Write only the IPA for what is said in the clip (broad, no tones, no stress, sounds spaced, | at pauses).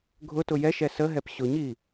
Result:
ɡʱ ʊ t ʊ j ɛ ʃ ɛ s ə ɦ ɛ p ɕ ʊ ɲ i